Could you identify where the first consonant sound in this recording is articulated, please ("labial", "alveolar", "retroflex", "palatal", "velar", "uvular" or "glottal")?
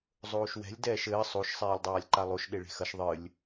alveolar